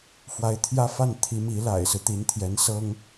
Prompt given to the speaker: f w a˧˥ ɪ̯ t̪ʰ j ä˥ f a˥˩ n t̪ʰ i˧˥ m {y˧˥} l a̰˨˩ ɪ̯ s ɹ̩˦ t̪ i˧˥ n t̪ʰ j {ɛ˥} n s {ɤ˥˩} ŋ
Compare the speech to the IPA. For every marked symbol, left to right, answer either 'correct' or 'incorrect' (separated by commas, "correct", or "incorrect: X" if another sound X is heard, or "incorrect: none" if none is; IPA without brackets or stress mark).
incorrect: i˧˥, incorrect: ɛ˧˥, incorrect: ɤ˥